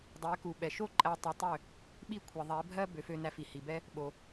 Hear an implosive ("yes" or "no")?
yes